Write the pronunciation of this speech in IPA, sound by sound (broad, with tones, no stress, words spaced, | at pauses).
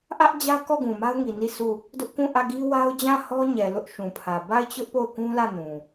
ʔä˦ʔd͡ʑä˦ kɔ˦˨ɡũ˨ma˦ʊ̯ŋi˨ ni˦˨su˦˨ | dʊ˦ʔkũ˦˨ʔä˦˨ɡi˦ wa˦ʊ̯d͡ʑã˦˨ hɔ˦ɲɛ˨ lʊ˦ʔʃũ˨pʰä˨ ba˦˨ɪ̯t͡ɕʊ˦ʔ po˦˨ʊ̯kũ˦lä˦˨nũ˨